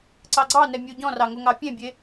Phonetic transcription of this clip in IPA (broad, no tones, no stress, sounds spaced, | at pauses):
ǀ ɑ ɡ͡ǀ ɑ n ɛ mʲ u ɟ ɔ̃ r ɑ ŋ o ŋ ɑ pʲ ẽ bʲ e